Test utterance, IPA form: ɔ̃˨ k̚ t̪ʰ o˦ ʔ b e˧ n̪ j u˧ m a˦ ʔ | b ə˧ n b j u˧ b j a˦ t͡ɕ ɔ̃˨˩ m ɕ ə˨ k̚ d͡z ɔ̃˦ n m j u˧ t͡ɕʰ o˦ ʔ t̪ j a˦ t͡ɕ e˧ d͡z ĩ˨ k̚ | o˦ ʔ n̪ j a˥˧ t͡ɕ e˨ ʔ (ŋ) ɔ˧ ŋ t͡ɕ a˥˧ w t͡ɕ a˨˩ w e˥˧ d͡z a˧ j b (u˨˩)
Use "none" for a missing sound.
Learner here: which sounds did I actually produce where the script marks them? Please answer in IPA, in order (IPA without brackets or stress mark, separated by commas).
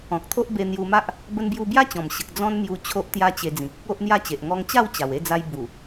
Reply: ŋ, u˨˩